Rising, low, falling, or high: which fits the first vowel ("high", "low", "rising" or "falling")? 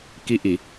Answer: rising